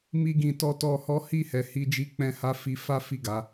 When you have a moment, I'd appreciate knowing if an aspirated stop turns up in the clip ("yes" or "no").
no